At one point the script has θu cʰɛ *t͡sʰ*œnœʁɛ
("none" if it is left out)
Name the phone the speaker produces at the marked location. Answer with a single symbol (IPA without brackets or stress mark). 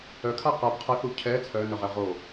t͡sʰ